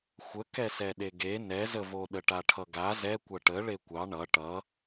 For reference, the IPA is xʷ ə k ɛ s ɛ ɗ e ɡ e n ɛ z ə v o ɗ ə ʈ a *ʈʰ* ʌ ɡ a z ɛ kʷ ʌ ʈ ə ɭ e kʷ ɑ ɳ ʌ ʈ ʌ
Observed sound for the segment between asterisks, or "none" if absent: ʈʰ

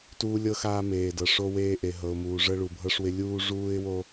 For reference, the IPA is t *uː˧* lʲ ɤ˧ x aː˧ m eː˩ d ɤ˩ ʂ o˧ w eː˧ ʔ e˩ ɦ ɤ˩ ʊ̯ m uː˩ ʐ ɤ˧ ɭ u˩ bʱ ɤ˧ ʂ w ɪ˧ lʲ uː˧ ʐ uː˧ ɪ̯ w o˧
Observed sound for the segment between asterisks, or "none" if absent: uː˧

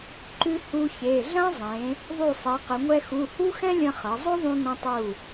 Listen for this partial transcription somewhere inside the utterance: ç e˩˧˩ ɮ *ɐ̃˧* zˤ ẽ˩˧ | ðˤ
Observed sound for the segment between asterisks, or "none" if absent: ɐ̃˥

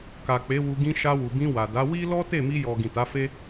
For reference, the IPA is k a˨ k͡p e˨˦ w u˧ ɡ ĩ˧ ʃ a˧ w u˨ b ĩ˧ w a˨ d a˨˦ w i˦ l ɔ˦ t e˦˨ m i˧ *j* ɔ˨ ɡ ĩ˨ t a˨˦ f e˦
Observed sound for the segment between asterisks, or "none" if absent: j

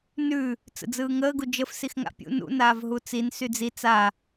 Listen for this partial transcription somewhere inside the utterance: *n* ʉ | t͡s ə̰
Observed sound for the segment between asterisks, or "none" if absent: n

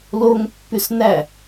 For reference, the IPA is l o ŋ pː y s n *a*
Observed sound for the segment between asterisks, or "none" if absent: æ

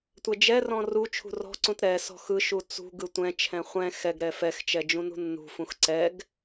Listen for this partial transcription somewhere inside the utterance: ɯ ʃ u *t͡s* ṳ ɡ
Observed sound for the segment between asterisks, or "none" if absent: t͡s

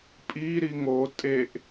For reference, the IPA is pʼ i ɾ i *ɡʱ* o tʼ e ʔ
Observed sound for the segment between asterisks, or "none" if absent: ŋ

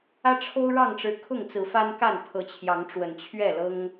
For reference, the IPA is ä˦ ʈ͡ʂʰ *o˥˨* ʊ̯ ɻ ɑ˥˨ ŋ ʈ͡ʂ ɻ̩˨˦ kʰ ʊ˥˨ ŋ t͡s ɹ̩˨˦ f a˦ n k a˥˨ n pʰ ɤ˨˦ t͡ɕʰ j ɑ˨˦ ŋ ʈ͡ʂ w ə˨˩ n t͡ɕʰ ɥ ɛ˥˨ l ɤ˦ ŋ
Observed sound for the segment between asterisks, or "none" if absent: o˦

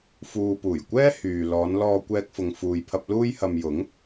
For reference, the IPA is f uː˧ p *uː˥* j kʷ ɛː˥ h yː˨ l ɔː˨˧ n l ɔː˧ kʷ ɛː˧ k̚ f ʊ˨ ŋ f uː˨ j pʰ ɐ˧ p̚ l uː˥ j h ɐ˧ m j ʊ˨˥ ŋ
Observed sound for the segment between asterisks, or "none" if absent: uː˨˩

